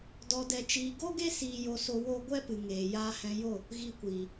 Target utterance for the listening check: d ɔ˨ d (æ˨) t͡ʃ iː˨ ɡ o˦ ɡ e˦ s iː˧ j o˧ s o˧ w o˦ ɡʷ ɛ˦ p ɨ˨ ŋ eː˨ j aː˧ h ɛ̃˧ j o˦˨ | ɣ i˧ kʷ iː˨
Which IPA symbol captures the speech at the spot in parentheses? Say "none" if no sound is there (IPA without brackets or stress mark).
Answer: ɛ˨